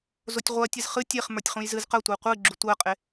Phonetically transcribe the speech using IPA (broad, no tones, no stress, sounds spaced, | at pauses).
z o tʲ ʁʷ ɜ tʲ ɨ z χ ɨ tʲ e χ m ə˞ tʲ χ ũ j z ɨ z q ɜ tʷ ə˞ qʷ ɨ ɡ͡ǁ u tʷ ɜ qʼ e